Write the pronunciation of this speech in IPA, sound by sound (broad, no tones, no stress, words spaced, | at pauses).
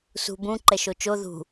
sṳ bũ ǃɛʃot͡ʃo ðṳ